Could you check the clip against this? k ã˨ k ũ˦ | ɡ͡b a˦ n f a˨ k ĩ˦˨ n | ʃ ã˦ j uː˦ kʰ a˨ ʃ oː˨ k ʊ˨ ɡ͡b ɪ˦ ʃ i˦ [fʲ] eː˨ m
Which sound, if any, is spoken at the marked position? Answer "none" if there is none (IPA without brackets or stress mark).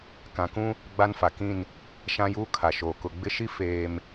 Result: f